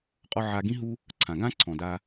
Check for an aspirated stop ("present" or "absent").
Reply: present